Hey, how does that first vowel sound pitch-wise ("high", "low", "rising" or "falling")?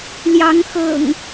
rising